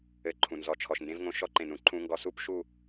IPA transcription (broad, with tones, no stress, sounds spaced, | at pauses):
ɘ˧ ǃʰ ũ˨ n z ɔ˨ t͡ʃʰ ɔ˨ ʃ n d ẽ˧ v ŋ õ˧ ʃ ɔ˦ ǃ ẽ˨ n ũ˦ ǃʰ ũ˧ ŋ ɡ ɔ˧ s u˦ p ʃ u˦˨